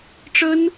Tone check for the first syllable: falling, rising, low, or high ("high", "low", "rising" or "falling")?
high